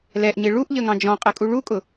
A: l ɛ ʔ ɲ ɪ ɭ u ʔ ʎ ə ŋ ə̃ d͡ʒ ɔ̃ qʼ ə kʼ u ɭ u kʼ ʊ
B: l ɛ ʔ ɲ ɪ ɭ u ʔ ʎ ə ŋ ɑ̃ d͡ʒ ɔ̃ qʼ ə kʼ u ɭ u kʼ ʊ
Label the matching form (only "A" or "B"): B